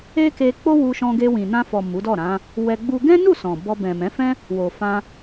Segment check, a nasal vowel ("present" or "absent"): present